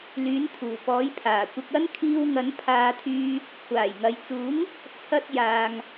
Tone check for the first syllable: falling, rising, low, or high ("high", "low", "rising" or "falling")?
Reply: rising